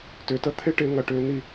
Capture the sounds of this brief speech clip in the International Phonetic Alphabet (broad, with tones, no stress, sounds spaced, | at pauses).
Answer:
t ʏː˨ t ə˦ t̪ʰ ɪ˦ ʈ ɪ˨˦ ŋ ɐ˨ ʈ ʏː˦ n̪ i˦